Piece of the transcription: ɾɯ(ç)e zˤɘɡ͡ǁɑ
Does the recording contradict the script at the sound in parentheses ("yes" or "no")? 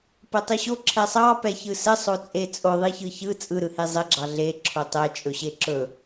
yes